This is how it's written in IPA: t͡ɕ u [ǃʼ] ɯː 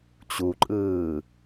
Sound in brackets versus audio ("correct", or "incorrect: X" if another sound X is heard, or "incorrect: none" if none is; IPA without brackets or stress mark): correct